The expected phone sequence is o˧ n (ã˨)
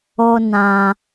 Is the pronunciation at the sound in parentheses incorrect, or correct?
correct